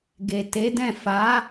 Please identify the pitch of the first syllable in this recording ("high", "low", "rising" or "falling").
low